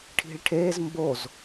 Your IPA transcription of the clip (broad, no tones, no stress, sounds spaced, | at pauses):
ʈʰ i̤ ɭ ʈʰ e z m b o z